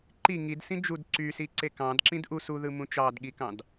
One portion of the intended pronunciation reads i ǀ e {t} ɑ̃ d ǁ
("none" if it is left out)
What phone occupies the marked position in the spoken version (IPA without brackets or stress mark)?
k